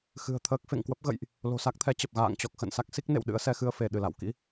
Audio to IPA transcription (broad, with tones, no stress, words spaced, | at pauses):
xɨ̤˨˩ə̯t̪ʰəː˦˥k̚ fḛ˧˨ŋkwə˦˥p̚ɣə̰˧˨jʔ | lo̤˨˩sa˦˥k̚t̪ʰɛ˨˦t͡ɕə˨˩p̚ ɣa̰ː˧˨ŋ t͡ɕɔ˨˩k̚xə̰˧˨n sa˦˥k̚si˦˥k̚nḛ˧˨w ɗɨ̰˧˥ə̯sɛ˨˦xɨ˧ə̯ fe˧˩ ɗɨ˧˩la̰˧˨wkḭ˧˥